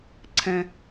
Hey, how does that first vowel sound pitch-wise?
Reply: high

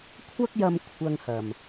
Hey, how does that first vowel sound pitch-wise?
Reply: high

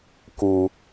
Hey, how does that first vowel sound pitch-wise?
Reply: low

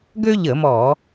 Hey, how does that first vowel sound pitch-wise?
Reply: high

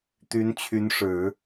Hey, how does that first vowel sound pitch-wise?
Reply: rising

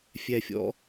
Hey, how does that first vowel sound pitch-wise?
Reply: low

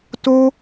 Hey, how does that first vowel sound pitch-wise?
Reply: high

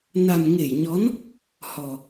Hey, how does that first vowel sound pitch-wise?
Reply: low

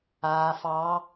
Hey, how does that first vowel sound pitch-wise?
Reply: low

